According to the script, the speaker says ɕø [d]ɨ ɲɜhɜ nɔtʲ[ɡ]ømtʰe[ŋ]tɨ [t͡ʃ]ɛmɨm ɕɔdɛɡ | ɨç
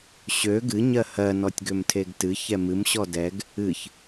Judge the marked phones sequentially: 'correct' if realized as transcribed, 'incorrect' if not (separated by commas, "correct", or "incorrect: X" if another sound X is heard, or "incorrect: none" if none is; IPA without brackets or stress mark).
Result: incorrect: ɡ, correct, incorrect: ɡ, incorrect: ç